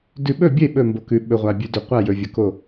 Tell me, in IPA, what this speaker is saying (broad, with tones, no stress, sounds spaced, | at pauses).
d ʉ˥˩ ɓ ɵ˥˩ bʲ e˥˩ ɓ ɵ˥˩ m b o˨ k ʉ˨ ɓ ɵ˨ ʁʷ a˨ bʲ ʉ˨ d ɵ˨ qʷ a˥˩ j ɵ˨ vʲ ɵ˨ k o˥˩